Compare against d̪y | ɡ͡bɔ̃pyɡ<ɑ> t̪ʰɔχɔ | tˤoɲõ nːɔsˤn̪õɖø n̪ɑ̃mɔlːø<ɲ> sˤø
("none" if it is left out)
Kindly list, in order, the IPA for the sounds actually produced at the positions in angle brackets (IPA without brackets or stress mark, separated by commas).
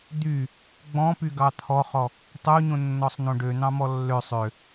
ɑ, none